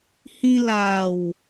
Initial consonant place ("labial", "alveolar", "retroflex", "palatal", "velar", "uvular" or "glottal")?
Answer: glottal